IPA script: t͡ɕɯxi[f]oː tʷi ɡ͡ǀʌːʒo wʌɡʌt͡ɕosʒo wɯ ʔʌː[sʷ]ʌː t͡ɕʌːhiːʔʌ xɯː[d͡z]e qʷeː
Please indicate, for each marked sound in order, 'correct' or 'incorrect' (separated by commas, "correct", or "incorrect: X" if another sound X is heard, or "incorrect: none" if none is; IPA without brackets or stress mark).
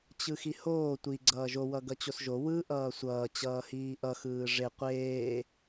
incorrect: h, correct, incorrect: ʐ